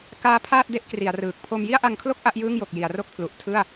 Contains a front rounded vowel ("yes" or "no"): no